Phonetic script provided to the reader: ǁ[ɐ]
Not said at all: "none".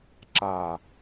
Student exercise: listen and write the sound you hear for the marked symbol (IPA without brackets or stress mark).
a